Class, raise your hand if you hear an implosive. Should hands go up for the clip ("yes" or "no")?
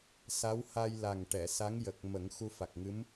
no